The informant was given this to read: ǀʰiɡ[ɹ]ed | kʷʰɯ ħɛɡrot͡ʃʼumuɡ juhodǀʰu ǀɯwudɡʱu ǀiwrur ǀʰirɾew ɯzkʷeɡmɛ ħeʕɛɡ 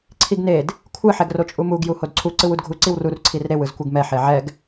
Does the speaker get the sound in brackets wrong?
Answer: yes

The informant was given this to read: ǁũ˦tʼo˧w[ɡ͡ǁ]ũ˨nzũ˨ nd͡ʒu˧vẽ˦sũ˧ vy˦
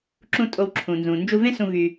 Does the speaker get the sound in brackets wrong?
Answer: yes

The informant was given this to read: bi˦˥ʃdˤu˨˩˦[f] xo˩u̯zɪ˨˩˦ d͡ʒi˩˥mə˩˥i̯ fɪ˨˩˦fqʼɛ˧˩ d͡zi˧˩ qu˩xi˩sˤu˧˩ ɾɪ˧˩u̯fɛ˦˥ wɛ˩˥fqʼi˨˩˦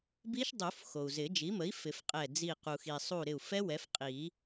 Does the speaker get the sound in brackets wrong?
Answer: no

